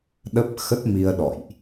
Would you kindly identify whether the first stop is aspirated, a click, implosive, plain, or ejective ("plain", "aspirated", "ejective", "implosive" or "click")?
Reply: implosive